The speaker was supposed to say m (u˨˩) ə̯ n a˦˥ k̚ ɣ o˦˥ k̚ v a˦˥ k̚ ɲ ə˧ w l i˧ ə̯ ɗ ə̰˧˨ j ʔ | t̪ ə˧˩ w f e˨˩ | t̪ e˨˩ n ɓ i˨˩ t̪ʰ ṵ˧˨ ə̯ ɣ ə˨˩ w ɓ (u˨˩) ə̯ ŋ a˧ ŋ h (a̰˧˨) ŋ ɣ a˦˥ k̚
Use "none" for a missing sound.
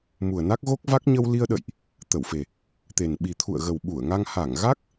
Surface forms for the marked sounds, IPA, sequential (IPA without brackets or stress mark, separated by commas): u˨˩, u˧˩, a˧˩